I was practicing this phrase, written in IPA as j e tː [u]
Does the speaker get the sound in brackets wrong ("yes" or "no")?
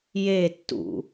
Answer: yes